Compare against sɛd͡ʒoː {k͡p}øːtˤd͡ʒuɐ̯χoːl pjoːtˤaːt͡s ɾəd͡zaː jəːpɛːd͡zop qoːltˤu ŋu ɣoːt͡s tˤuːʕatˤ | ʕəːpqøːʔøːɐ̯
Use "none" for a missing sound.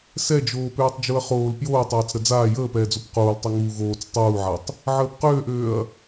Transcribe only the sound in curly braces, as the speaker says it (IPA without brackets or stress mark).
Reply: p